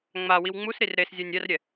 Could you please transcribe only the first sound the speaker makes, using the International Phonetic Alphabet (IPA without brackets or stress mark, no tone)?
ŋ͡m